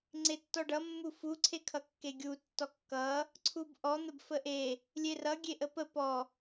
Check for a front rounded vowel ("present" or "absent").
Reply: absent